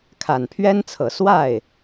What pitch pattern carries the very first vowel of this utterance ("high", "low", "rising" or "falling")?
low